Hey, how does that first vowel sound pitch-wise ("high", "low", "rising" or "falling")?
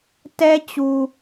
high